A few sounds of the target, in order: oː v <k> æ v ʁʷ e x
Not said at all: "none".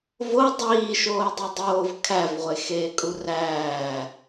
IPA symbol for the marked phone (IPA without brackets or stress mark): kʰ